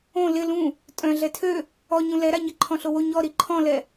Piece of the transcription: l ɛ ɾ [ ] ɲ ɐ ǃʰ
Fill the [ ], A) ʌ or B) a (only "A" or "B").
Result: B